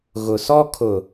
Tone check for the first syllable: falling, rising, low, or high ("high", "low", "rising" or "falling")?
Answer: low